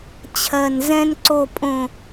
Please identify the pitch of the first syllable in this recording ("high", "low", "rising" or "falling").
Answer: low